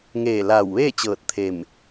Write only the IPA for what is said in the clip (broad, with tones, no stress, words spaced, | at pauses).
ŋeː˧˩laː˧˩w ʋeː˥˨t͡ɕɤː˧˩t̚ t̪ʰe˧˩m